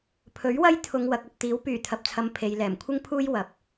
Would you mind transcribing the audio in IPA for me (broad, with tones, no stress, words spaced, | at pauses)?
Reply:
pʰɵ˨˥ɥwɐ˥j t̪ʰʊ˨ŋ wɐ˨k̚ɐ˧p̚t̪iː˨˥w pyː˨˩t̪ʰɐ˨p̚t͡sʰɐ˨m pʰe˨j lɛː˨˩mkʷʰɪ˥ŋ pʰuː˥j wɐ˨p̚